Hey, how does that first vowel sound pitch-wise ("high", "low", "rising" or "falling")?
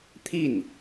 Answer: falling